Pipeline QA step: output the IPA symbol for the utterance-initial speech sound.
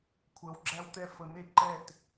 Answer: kʷʰ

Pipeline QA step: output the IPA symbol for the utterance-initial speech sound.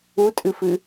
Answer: u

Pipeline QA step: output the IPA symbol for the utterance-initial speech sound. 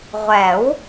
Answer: ʁʷ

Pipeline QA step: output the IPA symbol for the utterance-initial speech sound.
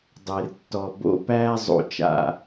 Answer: dˤ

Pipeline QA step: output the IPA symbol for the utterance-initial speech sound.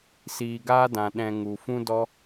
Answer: s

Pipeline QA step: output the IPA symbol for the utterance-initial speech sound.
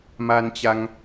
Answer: m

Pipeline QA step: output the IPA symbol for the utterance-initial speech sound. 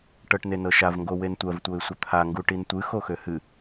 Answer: ʈ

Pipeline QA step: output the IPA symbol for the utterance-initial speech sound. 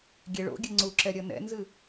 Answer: ɡʲ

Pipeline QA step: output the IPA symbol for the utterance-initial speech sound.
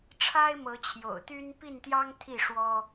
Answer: ʈ͡ʂʰ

